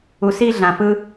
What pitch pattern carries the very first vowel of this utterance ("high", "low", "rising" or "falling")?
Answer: low